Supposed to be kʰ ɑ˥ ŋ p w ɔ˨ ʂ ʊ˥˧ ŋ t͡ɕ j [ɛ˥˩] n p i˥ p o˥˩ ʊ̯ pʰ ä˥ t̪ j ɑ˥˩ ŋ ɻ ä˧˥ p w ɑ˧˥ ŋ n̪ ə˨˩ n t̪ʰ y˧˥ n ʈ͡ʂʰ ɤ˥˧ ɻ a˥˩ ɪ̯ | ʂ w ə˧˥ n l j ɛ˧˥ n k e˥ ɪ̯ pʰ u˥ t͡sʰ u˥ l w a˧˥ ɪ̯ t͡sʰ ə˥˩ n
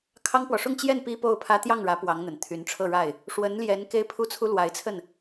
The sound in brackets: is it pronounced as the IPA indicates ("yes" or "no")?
yes